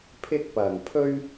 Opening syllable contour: high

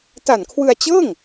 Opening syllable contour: low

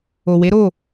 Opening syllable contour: low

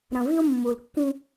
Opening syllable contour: low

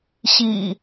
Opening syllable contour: low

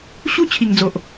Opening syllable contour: high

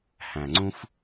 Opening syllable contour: low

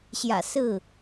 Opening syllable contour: low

